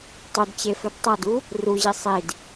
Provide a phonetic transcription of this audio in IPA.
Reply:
tˤɵdt͡ɕefɵd tˤʌdu | ruʑi sˤid

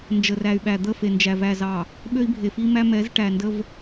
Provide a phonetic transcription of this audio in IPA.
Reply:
nd͡ʒə˨ræ˨y̯ɓæ˨ d̪ə˦˨fe˨ nd͡ʒæ˨væ˨zɑ˨ | ɓø˦i̯bʱe˨fi˦mæ˦ mɛ˨˦z ʈæ˨ndə˦v

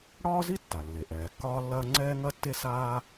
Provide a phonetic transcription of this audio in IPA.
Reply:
ɽɒː˥ zi˥tːa˩lːe˩ ʔɛː˩kːɒː˥lːɐː˥ ŋ͡ǀɛː˥ŋɐ˥tːe˥saː˥

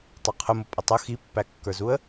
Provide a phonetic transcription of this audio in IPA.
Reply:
tˤɑqʰʊmʊ pʼʌtˤʊ xipːækːə˞zuə̯

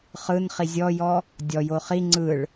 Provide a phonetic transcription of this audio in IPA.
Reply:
χɯnχi zʲɔjɔ | dʲɔjo χi ŋ͡ǀɯɭ

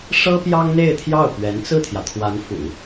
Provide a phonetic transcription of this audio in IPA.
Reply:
ʂɤ˥pjɑ˥ŋ n̪e˥˧ɪ̯t̪ʰjɑ˥˩ʊ̯pɥɛ˧˥n t͡sɹ̩˥˩t̪ʰjä˩t̪ʰwa˧˥n fṵ˨˩˦

